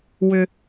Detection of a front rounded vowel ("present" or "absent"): present